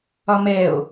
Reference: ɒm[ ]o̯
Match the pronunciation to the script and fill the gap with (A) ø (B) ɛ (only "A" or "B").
B